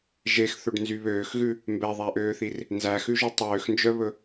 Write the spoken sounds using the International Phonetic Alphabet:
ʒ e x θ ɵ ɖ n z y β øː x ɣ ʉ | m b ɛ ðˤ æ ʔ øː θ i r | n z æ x ʉ ʒ ɵ tˤ øː x n d͡ʒ œ β ɵ

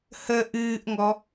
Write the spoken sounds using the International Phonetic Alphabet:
h ə ʔ ɨː ʔ ŋ ɔ

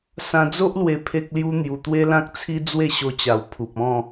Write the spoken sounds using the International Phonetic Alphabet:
s ã˧ d͡z o˦ ʔ l w e˧ pʰ e˦ k̚ l j u˦ n̪ j u˧ t̪ w e˦ l ã˦ k̚ t͡sʰ i˦ d͡z w e˥˧ ɕ o˧ t͡ɕ a˨˩ w pʰ u˨ p̚ ɔ̃˥˧

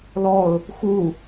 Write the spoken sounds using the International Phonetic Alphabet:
l ɔ ʊ̯ | x u

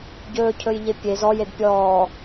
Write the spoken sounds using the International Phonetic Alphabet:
ɟ ɵː cʰ ɵ j ʎ e pʲ e z ɔ j e d pʲ ɔː

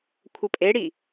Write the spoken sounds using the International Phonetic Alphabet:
kʷʰ ə pʼ e ɽ i

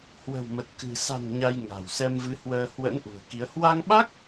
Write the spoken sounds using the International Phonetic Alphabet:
h w ə̤˨˩ w m ə˨˩ t̚ k ɨ̤˨˩ s a̤˨˩ n ɲ a˧ j ŋ a̤˨˩ w s ɛ˧ m v ɨ˨˦ h w əː˧ h w ə̰˧˥ n ʔ ṳ˨˩ ə̯ k i˨˦ ə̯ h w a˧ ŋ ɓ a˦˥ k̚

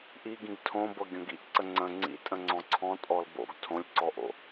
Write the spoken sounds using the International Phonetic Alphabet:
ʔ i ɡ ĩ ɡ tʰ õ b ɤ ɡʲ õ ɡ ḭ ʔ ǀ ə ŋ͡ǀ ə̃ ŋ͡ǀ ḭ tʼ ə̃ ŋ͡ǀ ɔ̃ ǀʰ ɔ̃ tʼ ɔ l b o̰ ɡ tʰ õ lʲ ǀ ɔ ʔ o̰

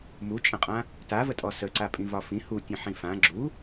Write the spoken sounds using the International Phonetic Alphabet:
m u t͡ʃʼ ə̃ qʼ ã | t a v ə tʼ ɔ s ə ǀ a pʼ ĩ v ɒ f ĩ h u tʲ ə̃ ħ ĩ f ã ɡ͡ǁ u

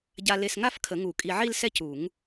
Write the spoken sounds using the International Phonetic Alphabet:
ɟ a˧ l e˧ s ŋ a˥˧ f kʰ ə˨˩˦ ŋ u˨˩˦ kʼ i˧ ʕ i˥˧ l s ɛ˥˧ c u˨˩˦ ŋ

